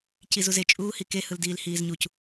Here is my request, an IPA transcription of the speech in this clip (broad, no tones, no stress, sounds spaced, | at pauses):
c i z u z e t͡ʃʼ uː h i k e h ɯ l d iː l h iː z ɲ u c